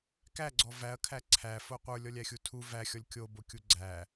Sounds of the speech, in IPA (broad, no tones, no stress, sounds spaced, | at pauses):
k æ ɡ͡ǀ ɔ v æ ɐ̯ kʰ æ ǀʰ æ f o qʷ ə˞ lʲ ɔ lʲ æ xʲ u tʰ u v æ xʲ ɔ lʲ kʲ o b o kʲ u ɡ͡ǀ æ